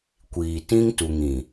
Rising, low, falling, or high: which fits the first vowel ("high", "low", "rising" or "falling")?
low